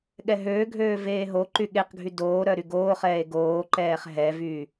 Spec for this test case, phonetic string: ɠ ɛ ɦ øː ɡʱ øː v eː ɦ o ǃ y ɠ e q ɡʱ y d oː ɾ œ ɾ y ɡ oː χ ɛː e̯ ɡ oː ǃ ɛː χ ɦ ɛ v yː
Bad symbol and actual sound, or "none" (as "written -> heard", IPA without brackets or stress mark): none